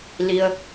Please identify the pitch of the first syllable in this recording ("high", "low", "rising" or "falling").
low